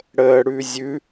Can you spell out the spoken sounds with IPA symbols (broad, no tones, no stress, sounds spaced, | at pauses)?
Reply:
ɽ əː ɽ ʉ zʲ ʉ